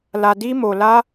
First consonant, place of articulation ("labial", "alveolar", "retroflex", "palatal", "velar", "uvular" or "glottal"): alveolar